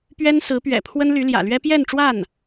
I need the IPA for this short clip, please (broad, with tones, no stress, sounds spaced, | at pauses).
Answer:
p ɥ ɛ˥ n s ɹ̩˧˥ p ɥ ɛ̰˨˩ pʰ w ə˥ n l y˧˥ l j ä̰˨˩ l ɥ ɛ˥ p j ɛ˥˧ n ʈ͡ʂ w a˥˩ n